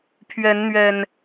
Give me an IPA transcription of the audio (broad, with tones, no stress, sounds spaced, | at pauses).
pʰ ɥ ɛ˨˦ n n̪ ɥ ɛ˨˩ n